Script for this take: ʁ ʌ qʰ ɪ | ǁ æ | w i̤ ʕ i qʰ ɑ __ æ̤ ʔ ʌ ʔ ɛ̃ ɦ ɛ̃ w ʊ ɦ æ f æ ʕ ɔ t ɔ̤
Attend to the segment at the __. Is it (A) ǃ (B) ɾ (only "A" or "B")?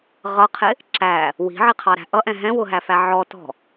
B